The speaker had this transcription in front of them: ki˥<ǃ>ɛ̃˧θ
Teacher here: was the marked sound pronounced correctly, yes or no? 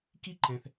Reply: yes